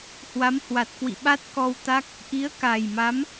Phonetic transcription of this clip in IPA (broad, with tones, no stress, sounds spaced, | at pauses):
h w a˨˦ m h w a˨˩ t̚ k w ḭ˧˨ ɓ a˦˥ t̚ k ɔ˧ w t̪ a˦˥ k̚ | ʔ i˨˦ ə̯ k a˨˩ j m a˨˦ m